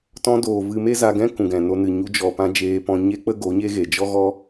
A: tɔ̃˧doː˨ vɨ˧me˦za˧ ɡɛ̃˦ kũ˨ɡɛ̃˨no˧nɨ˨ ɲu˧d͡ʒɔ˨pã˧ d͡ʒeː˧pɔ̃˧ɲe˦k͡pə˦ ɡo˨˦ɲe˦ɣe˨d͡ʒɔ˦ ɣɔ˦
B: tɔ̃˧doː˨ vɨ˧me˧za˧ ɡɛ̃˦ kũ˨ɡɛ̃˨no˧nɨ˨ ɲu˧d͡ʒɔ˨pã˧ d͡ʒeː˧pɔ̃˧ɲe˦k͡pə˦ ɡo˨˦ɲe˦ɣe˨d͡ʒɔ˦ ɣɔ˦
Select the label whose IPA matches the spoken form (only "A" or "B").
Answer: A